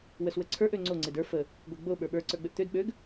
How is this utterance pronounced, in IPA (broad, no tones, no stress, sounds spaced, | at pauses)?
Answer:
w ə s w ə ǀʰ ə˞ ʔ ø ŋ͡ǀ o ŋ͡ǀ e d ə˞ f ə | ɡʷ e ɡ͡b o ɓ ə˞ ɓ ə˞ ǀ ə˞ ɡ͡b ø ʔ t̪ ø d ɓ ø ɡ